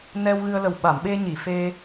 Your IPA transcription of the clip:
n ɛ˧ w ɣ ɨ˧ ə̯ l ə˨˩ w ɓ a˨˩˨ m ɓ e˧ ɲ i˨˩˨ f e˧

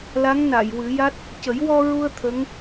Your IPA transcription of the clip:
l a˧˥ ŋ n a˨˩˨ j w ɨ˨˩˦ j a˦˥ t̚ | c ə˨˩˦ j w ɔ˧ ɹ u˧ ə̯ t̪ʰ ə˧˥ ŋ

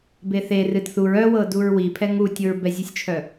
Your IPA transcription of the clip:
b e θ e r ɨ d θ u ɹ œ w ɤ d u ɹ w i pʰ ɛ ŋ u tʲ o ɹ b ɛ zʲ u sʲ t͡ʃʰ œ

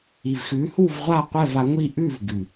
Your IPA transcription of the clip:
i˨˩ v x ʉː˨˦ h uː˥˧ v ʁʷ aː˥˧ qʷ ɛː˥˧ v a˨˦ ŋʷ i˥˧ ʔ ʉː˥˧ v ɡ ʉ˨˩

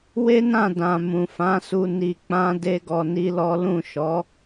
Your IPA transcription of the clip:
w e˦ n ã˦˨ d ã˨ m ũ˨ f ã˨˦ s u˧ n i˧ k͡p ã˦ d e˦ ɡ ɔ˧ n i˦ l ɔ˦ l ũ˦˨ ʃ ɔ˨˦

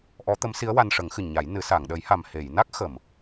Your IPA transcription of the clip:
ʔ ɔ˧˥ t̪ ə˧˥ m s i˧˥ ə̯ w a˧ n ʂ ə˨˩˦ ŋ x ɨ˨˩ ɲ a˨˩˦ j n ɨ˨˩˦ s a˨˩˨ ŋ ɗ ə˨˩˦ j h a˨˩ m h e˨˩˨ j n a˦˥ k̚ x ə˨˩˨ m

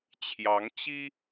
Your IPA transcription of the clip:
t͡ɕʰ j ɑ˧˥ ŋ t͡ɕ i˥

